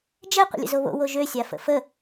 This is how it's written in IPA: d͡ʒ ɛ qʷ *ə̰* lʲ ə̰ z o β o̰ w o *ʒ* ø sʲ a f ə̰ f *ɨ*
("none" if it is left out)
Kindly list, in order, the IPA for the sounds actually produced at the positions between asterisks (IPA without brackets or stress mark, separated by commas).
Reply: ə̰, ʒ, ə